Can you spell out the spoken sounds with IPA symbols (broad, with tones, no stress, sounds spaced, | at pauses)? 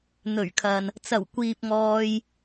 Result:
n̪ ɵ˨˩ ɥ kʰ ɐ˨ n | t͡s ɐ˨˩ w kʷ iː˨ p̚ ŋ ɔː˧ j